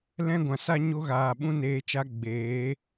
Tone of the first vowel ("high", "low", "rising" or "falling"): high